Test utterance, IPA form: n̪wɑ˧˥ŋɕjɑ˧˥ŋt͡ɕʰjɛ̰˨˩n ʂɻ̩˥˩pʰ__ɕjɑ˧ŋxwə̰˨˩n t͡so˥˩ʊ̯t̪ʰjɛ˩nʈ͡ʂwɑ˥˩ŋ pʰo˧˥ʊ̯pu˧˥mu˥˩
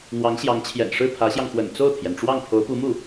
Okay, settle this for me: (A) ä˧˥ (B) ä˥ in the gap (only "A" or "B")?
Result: A